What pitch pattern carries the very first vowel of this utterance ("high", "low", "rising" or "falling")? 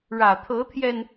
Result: low